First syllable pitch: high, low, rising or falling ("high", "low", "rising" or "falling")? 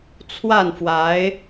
falling